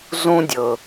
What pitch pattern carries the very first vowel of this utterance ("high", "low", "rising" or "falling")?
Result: high